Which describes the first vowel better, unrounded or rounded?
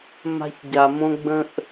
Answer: unrounded